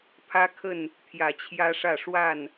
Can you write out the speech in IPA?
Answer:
pʰ ä˦ kʰ ə˥˨ n | t̪ʰ j ä˨˦ t͡ɕʰ j ä˦ ʂ ä˥˨ ʂ w a˥˨ n

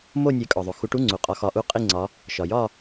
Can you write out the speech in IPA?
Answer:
m o˥˧ nʲ e˨˦ kʼ ɒ˩ ðˤ o˩ x u˨˦ ʈ u˧˥˧ ŋ͡ǀ u˩ qʼ ɒ˨˦ x ɒ˨˦ ʔ u˧˥˧ qʼ i˥˧ ŋ͡ǀ ɒ˨˦ | ʃ ɒ˩ j ɒ˥˧

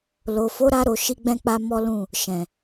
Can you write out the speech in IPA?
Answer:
l o˨ f o˨˦ ɾ a˧ ɾ o˨ ʃ i˧ ɡ͡b ɛ̃˧ k͡p a˧ m ɔ˦ l ũ˦˨ | ʃ ɛ̃˨

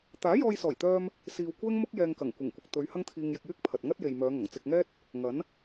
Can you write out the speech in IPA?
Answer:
t̪ aː˨˥ j ɔː˧ j s ɔː˨˩ j t̪ œː˧ m | s iː˧ w kʷ ɛː˥ ŋ m ʊ˥ k̚ j ɛː˧ ŋ k ɐ˨˩ ŋ kʷ ɪ˨˩ ŋ kʷ ɪ˨ k̚ t̪ ɵ˨˧ ɥ h ɐ˥ ŋ t̪ʰ iː˧ ŋ j ɪ˧ k̚ j yː˥ k̚ pʰ ɐ˨ t̚ ŋ ɐ˥ t̚ j e˨ j m œː˨˧ ŋ ɐ˨˩ ŋ t͡s ɪ˧ k̚ ŋ ɛː˥ t̚ | ŋ ɐ˨˥ n

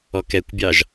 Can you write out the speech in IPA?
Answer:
ɔ k ɛ kʷ bʲ ɑ ʒ

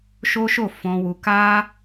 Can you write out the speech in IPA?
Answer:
ʃ o˦ ʃ o˦˨ f ɔ̃˧ w u˧ k a˦

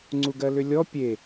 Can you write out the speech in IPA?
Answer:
ŋ͡ǀ u ɡ ɜ l ʏ lʲ ɔ pʲ e

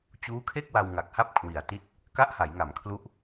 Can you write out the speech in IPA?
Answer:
t͡ɕ uː˦˥ kʰ e˥˩ k̚ w a˧ w ŋ a˨˩ k̚ h a˥˩ p̚ kʰ w i˩˦ a̯ t i˦˥ t̚ | k a˥˩ ʔ h a˩˦ j ŋ a˩˦ m kʰ l u˦˥ ʔ

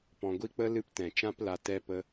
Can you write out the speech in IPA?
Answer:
p ɔ̃˨ ɡʷ i˧ k͡p ə˧ l ɨ˧ p t ɛ̃˨ t͡ʃ ã˦ p l a˧ t ɛ˧ p ə˧

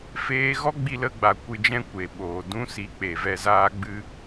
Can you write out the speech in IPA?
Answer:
f eː˧ ɣ ɔ˦ ɡ͡b i˧ l ə˧ ɡ͡b a˨ kʷ ɨ˨ d͡ʒ ɛ̃˧ kʷ e˨ ɓ oː˨ d ũ˦ s i˨˦ k͡p e˨ v ɛ˧ z aː˦ ɡ͡b ɨ˧

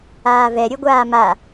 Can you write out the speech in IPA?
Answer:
aː v ɛ ɾʲ ɵ ɡʷ aː m a

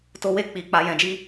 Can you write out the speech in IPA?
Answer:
t o˦ w e˦ k͡p i˧ k͡p a˧ j ɛ̃˧ d͡ʒ i˦

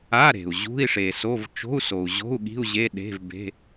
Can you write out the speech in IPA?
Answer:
a˧˥˧ ɾ e̤˩ u̯ ʑ ṳ˧˥˧ i̯ ʂ e˩ s o˧˥˧ v t͡ʃ o̤˧˥˧ u̯ s o˩ u̯ ʑ o̤˧˥˧ u̯ ɠ i̤˧˥˧ u̯ ʑ e˧˥˧ ɗ e̤˧˥˧ v b e̤˧˥˧

